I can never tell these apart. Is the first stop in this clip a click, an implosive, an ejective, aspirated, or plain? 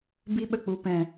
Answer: plain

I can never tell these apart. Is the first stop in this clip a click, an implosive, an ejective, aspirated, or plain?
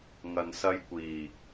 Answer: plain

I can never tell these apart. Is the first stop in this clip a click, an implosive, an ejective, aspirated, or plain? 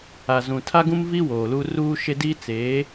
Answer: aspirated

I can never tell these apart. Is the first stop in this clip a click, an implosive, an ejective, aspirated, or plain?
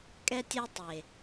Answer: ejective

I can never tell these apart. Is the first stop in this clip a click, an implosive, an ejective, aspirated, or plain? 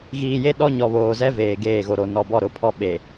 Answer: implosive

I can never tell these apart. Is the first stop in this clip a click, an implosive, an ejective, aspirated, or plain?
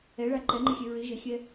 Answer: click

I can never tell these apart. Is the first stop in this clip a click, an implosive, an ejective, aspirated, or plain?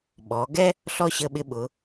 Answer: implosive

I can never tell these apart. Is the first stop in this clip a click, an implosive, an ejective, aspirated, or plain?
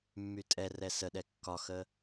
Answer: ejective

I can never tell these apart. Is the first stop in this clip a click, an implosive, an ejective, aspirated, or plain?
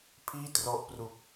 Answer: aspirated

